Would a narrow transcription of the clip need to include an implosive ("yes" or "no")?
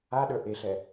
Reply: yes